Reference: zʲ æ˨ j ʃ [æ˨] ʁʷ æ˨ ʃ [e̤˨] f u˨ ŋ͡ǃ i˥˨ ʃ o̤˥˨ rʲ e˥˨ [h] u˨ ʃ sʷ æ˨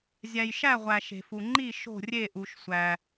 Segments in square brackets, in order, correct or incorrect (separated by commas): incorrect, correct, incorrect